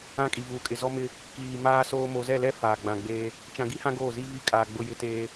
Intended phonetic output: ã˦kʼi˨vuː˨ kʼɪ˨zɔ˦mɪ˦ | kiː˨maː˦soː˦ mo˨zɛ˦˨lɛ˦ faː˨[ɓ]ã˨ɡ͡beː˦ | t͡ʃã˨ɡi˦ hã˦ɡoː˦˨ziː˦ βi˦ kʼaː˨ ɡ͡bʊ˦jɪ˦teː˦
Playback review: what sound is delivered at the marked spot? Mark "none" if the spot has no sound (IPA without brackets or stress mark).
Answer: ɡ͡b